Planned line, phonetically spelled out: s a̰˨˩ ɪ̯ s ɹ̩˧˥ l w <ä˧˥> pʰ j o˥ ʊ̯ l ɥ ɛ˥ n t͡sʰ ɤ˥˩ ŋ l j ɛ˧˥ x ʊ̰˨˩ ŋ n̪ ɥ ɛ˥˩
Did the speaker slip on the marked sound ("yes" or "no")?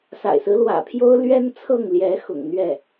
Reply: yes